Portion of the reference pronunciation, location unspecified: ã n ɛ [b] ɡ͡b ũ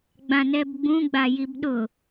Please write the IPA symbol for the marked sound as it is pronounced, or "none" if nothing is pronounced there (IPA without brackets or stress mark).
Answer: b